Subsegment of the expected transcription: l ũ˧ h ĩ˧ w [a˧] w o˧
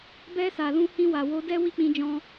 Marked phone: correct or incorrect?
incorrect